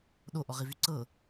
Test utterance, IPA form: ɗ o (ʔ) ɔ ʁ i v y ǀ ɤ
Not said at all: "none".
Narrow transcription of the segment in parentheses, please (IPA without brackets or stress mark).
ʔ